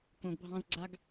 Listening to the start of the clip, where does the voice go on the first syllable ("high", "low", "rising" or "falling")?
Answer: low